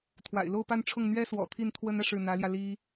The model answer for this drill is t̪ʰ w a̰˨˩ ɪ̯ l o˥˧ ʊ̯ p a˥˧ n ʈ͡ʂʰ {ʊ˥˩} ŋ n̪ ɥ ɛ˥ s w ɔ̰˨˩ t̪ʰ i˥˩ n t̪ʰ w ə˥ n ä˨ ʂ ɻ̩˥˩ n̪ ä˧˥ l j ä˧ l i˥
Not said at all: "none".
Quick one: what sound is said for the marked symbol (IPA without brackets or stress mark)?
ʊ˥˩